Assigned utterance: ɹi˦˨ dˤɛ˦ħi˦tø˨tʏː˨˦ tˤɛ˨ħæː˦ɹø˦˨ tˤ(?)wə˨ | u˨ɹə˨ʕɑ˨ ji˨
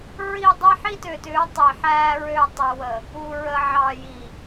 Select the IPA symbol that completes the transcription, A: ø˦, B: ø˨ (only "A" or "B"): B